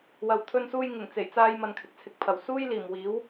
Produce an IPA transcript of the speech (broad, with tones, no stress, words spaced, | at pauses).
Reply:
wɐ˧wt̪ʰɵ˥nsuː˥j ŋɪ˨˩ŋt͡se˨˩jt͡saː˧jmɐ˨n kʰɪ˨k̚t͡sʰɪ˨k̚pʰɐ˨˩w suː˥jliː˨˩mwiː˨˥w